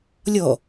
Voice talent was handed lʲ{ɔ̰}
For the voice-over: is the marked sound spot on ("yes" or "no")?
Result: no